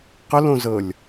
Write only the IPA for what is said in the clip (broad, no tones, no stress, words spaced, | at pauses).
qəlõzɤlʲ